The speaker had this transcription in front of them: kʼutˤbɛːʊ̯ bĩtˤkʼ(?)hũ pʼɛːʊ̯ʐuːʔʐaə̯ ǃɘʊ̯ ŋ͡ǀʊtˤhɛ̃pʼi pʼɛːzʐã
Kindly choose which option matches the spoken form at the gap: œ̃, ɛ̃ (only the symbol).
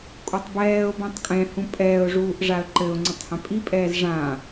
ɛ̃